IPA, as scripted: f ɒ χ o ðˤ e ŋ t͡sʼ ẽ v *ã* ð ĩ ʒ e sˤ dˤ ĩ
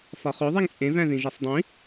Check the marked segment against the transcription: incorrect: æ̃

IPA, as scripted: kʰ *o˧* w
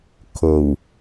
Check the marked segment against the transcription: incorrect: o˨˩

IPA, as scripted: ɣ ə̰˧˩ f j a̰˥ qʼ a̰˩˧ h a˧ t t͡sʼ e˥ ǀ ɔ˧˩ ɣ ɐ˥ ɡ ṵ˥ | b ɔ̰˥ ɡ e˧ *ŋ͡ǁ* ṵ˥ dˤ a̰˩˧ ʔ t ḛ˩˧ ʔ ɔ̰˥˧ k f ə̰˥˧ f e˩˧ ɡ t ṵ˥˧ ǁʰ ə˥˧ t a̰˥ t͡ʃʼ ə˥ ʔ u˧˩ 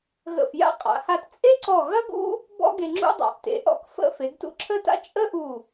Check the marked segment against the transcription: correct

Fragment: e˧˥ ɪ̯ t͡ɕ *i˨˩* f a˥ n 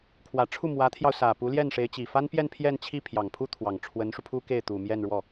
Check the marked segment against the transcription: correct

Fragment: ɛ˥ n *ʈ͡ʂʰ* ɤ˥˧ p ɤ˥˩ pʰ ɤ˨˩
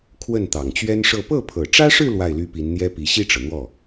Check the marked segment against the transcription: incorrect: ʂ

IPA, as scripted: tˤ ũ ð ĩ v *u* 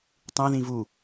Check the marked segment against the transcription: correct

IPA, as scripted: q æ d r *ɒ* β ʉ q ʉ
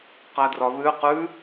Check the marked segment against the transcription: correct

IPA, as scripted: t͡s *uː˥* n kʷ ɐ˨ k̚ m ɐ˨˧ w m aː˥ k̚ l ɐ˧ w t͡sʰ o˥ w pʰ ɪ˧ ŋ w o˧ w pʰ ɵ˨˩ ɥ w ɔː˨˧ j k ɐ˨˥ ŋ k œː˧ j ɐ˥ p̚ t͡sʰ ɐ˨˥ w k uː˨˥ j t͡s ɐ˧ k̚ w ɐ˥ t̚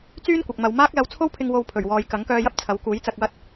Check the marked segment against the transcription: incorrect: yː˥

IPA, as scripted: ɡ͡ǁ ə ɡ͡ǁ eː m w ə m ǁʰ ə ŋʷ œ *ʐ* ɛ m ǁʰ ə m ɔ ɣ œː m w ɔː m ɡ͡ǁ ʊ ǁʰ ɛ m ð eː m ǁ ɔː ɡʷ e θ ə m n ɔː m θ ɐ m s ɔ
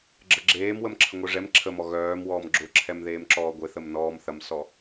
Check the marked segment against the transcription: correct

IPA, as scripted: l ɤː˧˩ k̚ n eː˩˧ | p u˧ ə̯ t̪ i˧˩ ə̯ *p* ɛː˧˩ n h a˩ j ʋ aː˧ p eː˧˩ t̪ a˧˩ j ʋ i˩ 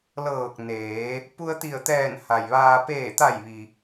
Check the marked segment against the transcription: incorrect: t̪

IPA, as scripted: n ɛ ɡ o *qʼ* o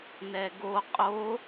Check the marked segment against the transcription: correct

